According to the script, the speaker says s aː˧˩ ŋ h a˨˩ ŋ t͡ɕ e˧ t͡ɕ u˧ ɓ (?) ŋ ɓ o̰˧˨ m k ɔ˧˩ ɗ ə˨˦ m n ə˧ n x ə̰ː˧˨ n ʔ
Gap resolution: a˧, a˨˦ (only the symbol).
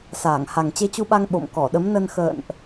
a˧